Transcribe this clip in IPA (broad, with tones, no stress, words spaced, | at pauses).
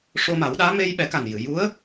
ʂo˧ma˨˩˦wɗaː˧˥ me˧j ɓɛ˨˩˦ka˨˩njɨ˨˩˨ ju˧˥ə̯